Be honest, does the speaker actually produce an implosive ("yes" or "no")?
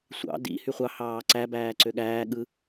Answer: yes